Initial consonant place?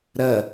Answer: alveolar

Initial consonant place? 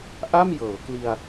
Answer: glottal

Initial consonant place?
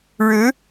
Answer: retroflex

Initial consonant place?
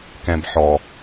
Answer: velar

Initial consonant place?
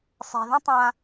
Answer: alveolar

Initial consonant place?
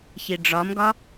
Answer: palatal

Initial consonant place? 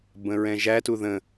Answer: labial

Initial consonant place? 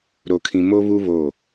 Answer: alveolar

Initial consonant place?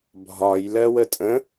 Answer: labial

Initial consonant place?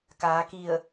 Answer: velar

